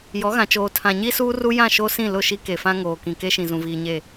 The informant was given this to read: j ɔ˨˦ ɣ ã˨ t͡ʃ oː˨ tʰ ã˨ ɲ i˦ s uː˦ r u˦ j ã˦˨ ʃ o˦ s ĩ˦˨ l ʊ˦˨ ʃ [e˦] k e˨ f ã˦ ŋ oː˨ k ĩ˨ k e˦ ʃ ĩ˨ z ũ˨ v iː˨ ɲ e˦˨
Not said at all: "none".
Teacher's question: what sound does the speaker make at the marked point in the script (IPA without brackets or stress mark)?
i˦